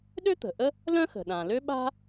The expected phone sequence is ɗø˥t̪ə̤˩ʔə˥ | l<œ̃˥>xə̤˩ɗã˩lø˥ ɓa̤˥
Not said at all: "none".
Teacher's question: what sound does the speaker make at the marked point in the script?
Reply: œ̃˥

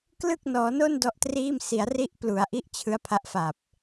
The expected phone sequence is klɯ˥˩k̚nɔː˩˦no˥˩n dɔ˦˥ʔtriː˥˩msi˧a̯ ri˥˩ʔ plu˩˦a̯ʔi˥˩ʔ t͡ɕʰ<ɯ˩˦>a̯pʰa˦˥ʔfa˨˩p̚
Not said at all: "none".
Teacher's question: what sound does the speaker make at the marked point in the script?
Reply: ɯ˦˥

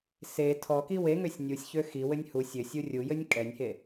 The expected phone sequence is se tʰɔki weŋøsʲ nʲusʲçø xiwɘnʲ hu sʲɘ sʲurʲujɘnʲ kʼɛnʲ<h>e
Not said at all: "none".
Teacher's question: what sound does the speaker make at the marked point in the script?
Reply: h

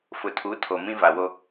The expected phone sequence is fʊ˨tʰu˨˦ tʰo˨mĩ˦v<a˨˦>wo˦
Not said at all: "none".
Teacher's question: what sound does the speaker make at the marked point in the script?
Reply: a˨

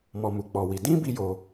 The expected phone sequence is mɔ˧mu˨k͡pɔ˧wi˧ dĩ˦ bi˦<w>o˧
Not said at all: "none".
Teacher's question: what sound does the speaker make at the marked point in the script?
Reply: j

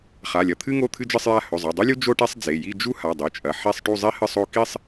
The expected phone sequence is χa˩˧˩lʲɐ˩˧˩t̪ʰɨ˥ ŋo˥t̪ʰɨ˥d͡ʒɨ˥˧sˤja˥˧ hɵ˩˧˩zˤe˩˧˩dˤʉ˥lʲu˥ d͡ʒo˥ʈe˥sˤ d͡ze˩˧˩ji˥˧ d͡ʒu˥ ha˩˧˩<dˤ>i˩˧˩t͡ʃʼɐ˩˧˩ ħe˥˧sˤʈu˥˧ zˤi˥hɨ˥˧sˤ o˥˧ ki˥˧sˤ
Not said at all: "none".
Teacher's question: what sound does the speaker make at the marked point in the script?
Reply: dˤ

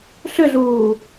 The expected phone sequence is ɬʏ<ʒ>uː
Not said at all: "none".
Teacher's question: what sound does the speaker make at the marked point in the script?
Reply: ɮ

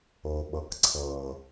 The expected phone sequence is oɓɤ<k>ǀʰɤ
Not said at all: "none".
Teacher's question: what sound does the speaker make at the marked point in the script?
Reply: k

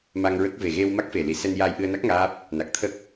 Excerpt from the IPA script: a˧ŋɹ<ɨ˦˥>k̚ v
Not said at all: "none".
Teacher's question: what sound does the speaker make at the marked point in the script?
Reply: ə˦˥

